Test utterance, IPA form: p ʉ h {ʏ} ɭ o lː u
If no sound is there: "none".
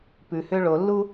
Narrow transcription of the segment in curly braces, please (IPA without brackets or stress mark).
ʏ